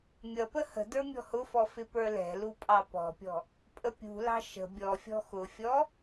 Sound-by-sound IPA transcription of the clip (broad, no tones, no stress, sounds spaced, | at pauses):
mʲ ʌ p ə h ə̤ d ə˞ mʲ ɔ̤ h ʊ f ɔ f ɪ p ə˞ l ɛ̤ l u pʼ ɑ p ɔ̤ pʲ ɔ̤ | pʼ ə pʲ ṳ l ɑ̤ ʃ ə̤ bʲ ɔ fʲ ɔ̤ x ʊ fʲ ɔ